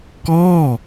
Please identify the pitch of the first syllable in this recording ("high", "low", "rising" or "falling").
falling